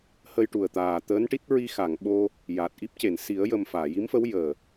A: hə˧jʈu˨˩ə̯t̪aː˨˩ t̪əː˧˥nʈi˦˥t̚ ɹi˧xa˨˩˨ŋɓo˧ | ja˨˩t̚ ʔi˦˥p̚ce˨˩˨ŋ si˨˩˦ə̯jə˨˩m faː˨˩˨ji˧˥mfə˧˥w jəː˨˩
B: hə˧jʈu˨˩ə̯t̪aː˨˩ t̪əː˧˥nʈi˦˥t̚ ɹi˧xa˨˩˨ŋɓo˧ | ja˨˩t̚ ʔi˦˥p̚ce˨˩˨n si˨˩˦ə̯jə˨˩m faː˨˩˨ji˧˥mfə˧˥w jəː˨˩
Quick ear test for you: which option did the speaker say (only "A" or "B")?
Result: B